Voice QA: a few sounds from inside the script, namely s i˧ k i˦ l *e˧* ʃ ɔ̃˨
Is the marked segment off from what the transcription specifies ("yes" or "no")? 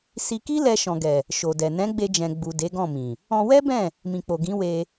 yes